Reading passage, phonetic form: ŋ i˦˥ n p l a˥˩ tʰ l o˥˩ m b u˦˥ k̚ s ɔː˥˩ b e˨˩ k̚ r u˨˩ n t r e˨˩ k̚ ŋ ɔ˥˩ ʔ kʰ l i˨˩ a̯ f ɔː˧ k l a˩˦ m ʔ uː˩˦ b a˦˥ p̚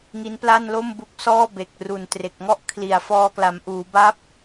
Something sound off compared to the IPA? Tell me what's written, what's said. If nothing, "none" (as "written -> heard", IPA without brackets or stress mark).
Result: tʰ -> n